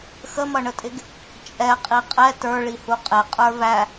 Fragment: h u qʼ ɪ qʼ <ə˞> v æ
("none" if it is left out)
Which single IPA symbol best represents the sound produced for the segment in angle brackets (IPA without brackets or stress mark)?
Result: ə˞